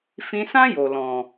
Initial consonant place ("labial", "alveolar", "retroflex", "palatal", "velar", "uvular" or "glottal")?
labial